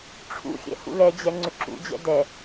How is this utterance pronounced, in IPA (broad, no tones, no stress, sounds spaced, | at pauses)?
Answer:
ʈ͡ʂʰ ṵ xʲ ɛ̰ h ṵ l ɛ d͡ʑ ɛ ŋ͡ǀ ʏ ǁ ṵ d͡ʑ ɛ̰ d ɛ